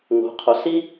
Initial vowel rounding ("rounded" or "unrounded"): rounded